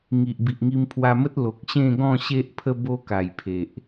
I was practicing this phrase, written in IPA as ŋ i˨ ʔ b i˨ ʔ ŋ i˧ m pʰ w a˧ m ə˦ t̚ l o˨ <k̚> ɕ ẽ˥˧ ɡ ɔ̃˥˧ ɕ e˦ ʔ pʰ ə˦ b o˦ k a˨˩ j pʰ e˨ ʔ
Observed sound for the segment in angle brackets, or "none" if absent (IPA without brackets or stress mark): k̚